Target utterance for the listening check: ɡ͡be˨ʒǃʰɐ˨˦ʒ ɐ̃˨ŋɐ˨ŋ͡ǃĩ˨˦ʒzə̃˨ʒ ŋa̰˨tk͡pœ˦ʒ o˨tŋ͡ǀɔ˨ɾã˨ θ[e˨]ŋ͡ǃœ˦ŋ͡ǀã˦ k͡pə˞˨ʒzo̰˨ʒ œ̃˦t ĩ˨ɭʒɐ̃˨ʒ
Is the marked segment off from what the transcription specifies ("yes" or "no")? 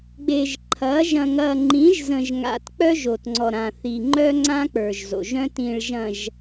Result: yes